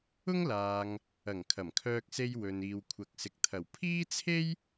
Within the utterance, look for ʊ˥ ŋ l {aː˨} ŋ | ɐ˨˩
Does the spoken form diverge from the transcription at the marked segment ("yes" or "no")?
no